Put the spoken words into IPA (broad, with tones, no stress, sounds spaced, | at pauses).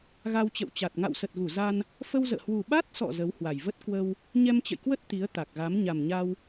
ɣ a˧ w t͡ɕ ə̰˧˨ w t͡ɕ a˨˩ t̚ ŋ a̰˧˨ w s ə˨˩ t̚ ɣ u˧˩ z a˧ n | f ə˧ w z ə̰ː˧˨ h w u˨˩ ɓ a˦˥ t̚ s ɔ̰˧˨ z ə˨˦ w h w a˨˩ j v ə˦˥ t̚ k w ə˧ w | ɲ ɛ˧ m t͡ɕ ə̰˧˨ j k w ə˦˥ t̚ t̪ i˨˦ ə̯ t̪ a˨˩ k̚ ɣ a˨˦ m ɲ a˨˩ m ɲ a˧ w